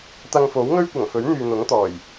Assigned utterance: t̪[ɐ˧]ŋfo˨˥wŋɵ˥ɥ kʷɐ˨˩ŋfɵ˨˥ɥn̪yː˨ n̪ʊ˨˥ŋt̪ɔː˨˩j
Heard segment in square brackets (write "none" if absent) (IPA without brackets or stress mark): ɐ˧